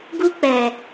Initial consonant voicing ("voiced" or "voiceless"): voiced